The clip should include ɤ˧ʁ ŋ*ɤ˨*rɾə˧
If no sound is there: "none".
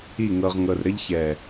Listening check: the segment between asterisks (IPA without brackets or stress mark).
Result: ɤ˨